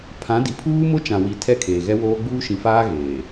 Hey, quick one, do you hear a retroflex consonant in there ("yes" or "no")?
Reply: no